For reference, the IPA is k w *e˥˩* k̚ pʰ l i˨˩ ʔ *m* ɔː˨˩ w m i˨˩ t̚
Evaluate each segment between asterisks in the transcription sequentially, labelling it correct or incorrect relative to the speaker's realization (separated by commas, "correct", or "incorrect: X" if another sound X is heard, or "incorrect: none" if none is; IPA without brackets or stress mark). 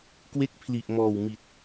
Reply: correct, correct